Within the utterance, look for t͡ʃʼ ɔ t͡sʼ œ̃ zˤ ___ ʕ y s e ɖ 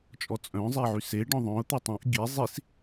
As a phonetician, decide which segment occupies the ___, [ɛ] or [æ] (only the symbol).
ɛ